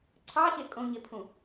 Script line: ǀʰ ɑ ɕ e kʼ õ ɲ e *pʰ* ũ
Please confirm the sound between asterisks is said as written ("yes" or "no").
yes